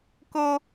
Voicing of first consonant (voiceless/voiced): voiceless